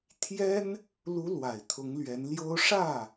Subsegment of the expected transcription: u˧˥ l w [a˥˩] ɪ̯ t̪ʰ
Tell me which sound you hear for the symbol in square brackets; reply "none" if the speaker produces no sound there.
a˨˩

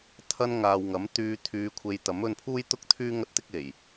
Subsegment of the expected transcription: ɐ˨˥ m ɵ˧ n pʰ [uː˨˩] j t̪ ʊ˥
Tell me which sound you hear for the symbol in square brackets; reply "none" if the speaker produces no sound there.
uː˥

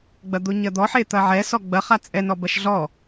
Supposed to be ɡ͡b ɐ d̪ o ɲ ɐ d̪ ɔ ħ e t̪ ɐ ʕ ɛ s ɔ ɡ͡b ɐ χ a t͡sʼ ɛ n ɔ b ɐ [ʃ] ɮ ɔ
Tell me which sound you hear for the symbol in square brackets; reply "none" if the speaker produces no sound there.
ʃ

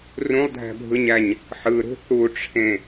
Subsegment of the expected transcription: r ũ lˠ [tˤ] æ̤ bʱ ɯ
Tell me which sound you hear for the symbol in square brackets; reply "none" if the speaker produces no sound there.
dʱ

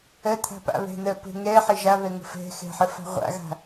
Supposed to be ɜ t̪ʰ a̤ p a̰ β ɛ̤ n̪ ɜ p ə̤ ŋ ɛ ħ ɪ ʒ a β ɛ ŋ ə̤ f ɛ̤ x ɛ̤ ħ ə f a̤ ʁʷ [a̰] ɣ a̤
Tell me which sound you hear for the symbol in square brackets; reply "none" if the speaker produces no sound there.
a̰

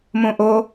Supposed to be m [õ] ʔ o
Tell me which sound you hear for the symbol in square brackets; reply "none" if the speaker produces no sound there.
õ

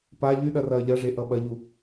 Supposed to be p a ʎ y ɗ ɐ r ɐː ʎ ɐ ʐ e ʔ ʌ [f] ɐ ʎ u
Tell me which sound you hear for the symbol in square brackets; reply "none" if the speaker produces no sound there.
ɓ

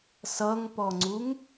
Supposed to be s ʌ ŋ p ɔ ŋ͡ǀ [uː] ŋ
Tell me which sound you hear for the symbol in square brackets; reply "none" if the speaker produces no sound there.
u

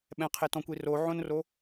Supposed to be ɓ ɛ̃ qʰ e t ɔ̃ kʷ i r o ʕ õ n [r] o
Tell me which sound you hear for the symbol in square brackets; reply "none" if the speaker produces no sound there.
r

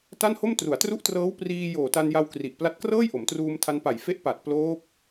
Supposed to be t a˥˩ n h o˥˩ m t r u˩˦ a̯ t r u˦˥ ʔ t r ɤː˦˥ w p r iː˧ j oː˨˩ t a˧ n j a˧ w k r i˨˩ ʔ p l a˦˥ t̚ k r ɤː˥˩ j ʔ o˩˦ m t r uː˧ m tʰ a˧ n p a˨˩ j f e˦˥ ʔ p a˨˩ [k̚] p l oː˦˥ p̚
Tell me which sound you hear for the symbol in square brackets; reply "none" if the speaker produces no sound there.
t̚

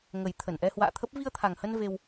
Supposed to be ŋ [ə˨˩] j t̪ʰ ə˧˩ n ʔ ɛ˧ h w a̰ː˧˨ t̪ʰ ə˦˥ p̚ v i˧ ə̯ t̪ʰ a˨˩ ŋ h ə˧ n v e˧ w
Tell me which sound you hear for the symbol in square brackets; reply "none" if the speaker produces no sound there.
ə˨˩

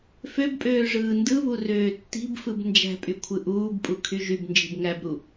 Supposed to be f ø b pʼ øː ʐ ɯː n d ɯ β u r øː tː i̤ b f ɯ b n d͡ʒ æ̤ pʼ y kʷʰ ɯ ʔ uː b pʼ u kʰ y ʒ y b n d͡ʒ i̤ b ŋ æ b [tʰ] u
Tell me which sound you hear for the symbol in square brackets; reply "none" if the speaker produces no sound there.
ɾ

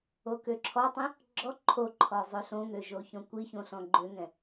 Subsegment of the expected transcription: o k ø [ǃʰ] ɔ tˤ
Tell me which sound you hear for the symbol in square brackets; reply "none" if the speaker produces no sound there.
ǁʰ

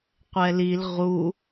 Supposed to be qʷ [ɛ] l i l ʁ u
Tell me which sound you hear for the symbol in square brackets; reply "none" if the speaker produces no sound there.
ɛ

